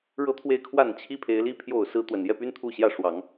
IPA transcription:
ɻ ɤ˦ t̪ʰ w e˥˨ ɪ̯ kʰ w a˥˨ n t͡ɕʰ i˦ pʰ e˨˦ ɪ̯ l i˦ pʰ j o˥˨ ʊ̯ s ɹ̩˦ t̪ w ə˨˩ n j ɛ˥˨ p y˦ n t̪ʰ u˥˨ ɕ j ä˥˨ ʂ w ɑ˨˦ ŋ

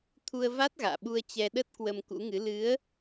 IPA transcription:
t̪ʰ u˧ ə̯ v a˦˥ t̚ ɣ a̰ː˧˨ ɓ u˧ ə̯ t͡ɕ ɛ˧ ɗ ə˦˥ t̚ k w ə˧ m k ṵ˧˥ ŋ ɨ˨˦ l ɨ˨˦ ə̯

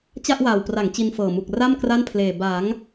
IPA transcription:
t͡ɕ a˥˩ ʔ w aː˨˩ w p r a˩˦ ŋ t͡ɕ i˧ n f ɤː˨˩ m u˨˩ k̚ r a˥˩ m k r a˥˩ n pʰ l eː˨˩ b a˩˦ ŋ

